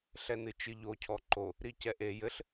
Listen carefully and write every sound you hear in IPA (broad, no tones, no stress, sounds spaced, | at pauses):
ɬ ɛ n ɨ t͡ʃ ɨ ʎ o cʰ ɔ ǃ o | ɾ i c ɛ ʔ e j ɘ ɬ